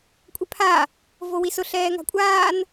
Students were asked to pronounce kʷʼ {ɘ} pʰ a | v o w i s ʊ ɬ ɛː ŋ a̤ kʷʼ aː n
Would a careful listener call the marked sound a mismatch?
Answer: yes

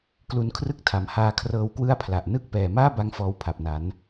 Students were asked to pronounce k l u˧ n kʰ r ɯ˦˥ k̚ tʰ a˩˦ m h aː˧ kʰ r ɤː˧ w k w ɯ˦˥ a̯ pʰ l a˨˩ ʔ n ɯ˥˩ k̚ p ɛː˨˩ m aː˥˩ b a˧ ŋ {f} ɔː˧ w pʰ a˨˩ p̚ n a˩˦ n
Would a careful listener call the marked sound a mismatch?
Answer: no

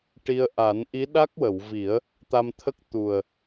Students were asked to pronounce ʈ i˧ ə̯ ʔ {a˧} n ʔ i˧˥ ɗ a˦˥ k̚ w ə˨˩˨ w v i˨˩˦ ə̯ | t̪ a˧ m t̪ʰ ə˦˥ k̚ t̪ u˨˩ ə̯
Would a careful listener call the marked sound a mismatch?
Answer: yes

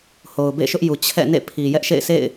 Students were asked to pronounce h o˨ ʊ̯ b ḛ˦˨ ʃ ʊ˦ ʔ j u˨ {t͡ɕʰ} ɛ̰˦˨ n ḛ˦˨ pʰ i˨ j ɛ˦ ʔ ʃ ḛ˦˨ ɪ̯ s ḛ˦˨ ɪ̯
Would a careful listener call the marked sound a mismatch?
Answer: no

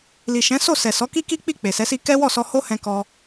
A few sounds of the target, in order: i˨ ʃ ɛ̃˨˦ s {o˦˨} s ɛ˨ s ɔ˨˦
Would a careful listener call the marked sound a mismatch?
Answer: no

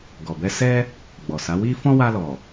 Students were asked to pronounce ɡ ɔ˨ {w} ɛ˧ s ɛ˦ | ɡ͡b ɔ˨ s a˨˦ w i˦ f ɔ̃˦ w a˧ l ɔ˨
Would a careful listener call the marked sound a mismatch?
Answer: yes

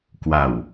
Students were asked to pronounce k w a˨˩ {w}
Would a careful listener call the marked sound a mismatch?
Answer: no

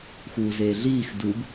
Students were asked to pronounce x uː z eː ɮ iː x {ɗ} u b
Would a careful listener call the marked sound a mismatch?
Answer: yes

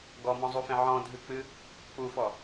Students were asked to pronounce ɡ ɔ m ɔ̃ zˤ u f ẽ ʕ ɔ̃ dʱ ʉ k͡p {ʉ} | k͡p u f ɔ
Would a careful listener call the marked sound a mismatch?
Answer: yes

